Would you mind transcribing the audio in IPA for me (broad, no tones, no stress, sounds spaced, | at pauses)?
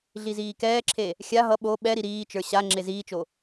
ɮ i z iː k ɛː ǁʰ e | xʲ a ɦ ʌ ɓ o ɓ ɛ ɾ i ɾ iː t͡ʃ ə˞ ɕ a ŋ͡ǁ e z iː t͡ʃ o